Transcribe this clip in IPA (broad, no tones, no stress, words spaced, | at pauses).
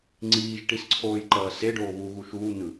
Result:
ŋ͡ǀiːʒʈisǀʰoːjǃʌː seɖoː βuɣu ʃuːn̪ɯ